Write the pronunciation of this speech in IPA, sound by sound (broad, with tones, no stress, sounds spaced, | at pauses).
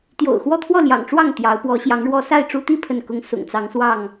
t̪ j o̰˨˩ ʊ̯ x w ɔ˥˨ t̪ʰ w ɔ˥˨ l j ɑ̰˨˩ ŋ ʈ͡ʂ w ɑ˥˨ ŋ t̪ j ɑ˨˦ ʊ̯ p w ɔ˨˦ ɕ j ɑ˨˦ ŋ ɻ w ɔ˦ s a˥˨ ɪ̯ ʈ͡ʂ u˦ t̪ i˥˨ pʰ ə˥˨ n k ʊ˦ ŋ s ʊ̰˨˩ ŋ t͡s ɑ˨˦ ŋ s w ɑ˥˨ ŋ